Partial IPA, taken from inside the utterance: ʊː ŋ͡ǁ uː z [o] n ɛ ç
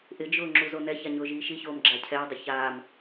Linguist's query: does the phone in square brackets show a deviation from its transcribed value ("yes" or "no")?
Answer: no